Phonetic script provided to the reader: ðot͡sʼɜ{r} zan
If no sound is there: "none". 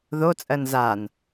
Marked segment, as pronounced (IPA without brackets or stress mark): n